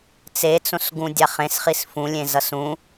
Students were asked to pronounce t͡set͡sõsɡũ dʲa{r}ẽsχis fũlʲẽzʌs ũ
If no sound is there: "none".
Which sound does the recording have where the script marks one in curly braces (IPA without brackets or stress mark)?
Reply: χ